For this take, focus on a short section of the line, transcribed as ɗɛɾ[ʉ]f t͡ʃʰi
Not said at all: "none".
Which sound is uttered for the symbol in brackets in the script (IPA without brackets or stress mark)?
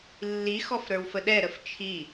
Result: ə